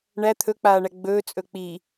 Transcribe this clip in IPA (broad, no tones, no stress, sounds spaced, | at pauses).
ɳ æ t̪ʰ ɵ k͡p aː ɳ æ ɡ͡b ɵː t͡sʼ ɵ k͡p i